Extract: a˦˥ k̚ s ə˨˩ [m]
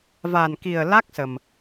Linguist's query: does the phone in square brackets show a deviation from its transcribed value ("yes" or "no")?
no